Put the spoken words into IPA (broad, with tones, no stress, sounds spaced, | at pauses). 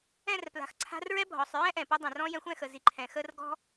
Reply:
ɛ̃˦˨ r p l a̤˨ x ǀʰ a̤˧ r ɹ ɛ˦ bʱ ɔ˨ sˤ ɹ ɛ̃˦ ʔ ɛ̃˨ p u˧ dˤ ɛ̃˨ r ɔ̃˧ j ɛ̃˧ xʷ ɛ̃˦˨ x ə˨ z i˨ ǃʰ ɛ̃˨ x ə˦ r ɡ ɔ̤˦